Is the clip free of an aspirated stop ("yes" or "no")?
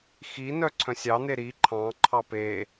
no